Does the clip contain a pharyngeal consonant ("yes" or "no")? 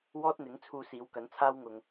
no